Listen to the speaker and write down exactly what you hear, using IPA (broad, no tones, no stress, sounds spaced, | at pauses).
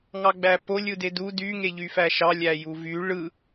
ŋ ɑ ɡ͡b æ p o lʲ ɯ d e d u d y ŋ e ʎ y f æ ʃ ɑ lʲ æ j u v y ɭ ɯ